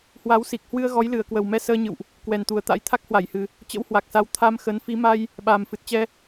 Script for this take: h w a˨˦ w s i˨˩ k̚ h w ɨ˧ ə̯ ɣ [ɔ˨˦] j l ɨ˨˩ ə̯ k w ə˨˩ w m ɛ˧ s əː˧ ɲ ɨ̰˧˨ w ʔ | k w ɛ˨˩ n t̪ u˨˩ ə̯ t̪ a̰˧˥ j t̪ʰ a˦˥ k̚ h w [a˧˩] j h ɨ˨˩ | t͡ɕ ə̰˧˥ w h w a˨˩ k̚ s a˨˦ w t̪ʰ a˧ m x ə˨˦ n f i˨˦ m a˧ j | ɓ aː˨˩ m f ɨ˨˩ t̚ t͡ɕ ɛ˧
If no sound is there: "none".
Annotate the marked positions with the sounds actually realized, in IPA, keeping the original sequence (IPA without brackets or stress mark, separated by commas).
ɔ˨˦, a˧˩